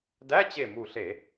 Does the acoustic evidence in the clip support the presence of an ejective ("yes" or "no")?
no